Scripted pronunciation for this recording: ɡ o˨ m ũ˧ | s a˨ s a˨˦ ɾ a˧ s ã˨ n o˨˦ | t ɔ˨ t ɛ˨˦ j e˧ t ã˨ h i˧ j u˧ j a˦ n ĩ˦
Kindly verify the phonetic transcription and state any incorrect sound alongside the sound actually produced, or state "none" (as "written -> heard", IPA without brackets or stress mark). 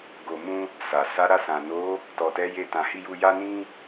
none